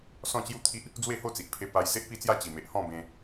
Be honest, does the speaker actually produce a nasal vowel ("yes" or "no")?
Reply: yes